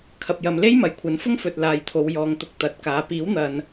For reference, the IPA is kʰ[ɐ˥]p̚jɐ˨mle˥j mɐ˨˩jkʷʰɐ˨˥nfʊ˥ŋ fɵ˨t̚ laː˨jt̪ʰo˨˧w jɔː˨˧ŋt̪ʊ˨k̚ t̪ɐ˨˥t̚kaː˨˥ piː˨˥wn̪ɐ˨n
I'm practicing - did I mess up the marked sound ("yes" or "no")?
yes